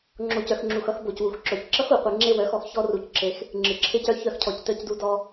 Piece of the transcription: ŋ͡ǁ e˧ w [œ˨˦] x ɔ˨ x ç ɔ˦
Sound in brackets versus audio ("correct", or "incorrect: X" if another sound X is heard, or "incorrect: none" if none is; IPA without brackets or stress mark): correct